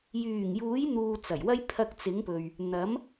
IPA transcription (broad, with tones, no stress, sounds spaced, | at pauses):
j yː˨˩ ŋ j uː˨˥ j n̪ uː˨ t͡s ɐ˨˩ j w ɐ˥ j pʰ ɐ˧ k̚ t͡s ɪ˨˥ ŋ p ɵ˨ ɥ | n̪ ɐ˨˥ m